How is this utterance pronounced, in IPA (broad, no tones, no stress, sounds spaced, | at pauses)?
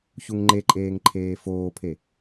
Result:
ç u ŋ ŋ͡ǃ e ǃʼ eː ŋ ǃʰ eː f oː pʰ e